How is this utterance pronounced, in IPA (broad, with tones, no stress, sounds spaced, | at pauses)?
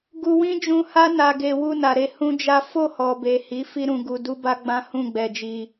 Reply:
ɡ u˧ w ĩ˦ d͡ʒ ũ˧ h a˦ n a˧ ɡ e˧ w u˧ n a˨ ɾ e˧ h ũ˦ d͡ʒ a˦ f o˦˨ h ɔ˨ b e˨ h i˨˦ f i˦ ɾ ũ˧ ɡ u˧ d u˦ b a˦ ɡ͡b ã˦ h ũ˦˨ ɡ͡b ɛ˧ d͡ʒ i˧